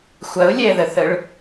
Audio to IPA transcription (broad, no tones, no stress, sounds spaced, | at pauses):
xʷ ɐ ʊ̯ lʲ ɛ ð ə θ ə ɭ